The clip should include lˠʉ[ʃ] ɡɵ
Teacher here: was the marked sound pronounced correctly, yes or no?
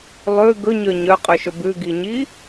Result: no